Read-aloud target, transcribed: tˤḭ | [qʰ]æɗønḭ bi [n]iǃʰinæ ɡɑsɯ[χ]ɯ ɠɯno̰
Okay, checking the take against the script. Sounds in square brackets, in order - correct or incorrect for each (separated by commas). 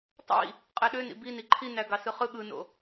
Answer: incorrect, correct, correct